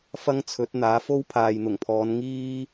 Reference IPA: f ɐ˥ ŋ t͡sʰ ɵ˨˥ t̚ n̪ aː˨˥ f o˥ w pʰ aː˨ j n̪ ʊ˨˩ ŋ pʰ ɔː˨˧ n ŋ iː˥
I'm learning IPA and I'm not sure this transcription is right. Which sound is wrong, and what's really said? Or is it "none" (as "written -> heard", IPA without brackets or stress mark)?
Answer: none